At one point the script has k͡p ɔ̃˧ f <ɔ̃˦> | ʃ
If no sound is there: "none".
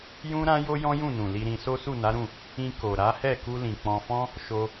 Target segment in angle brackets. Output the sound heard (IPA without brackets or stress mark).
ɔ̃˦